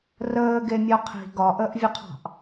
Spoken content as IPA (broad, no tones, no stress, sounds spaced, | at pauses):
r əː ɡ e mʲ ɒ qʰ i̤ ɡ ɒ ʔ əː ʔ vʲ ə qʰ ɑ̤ ʔ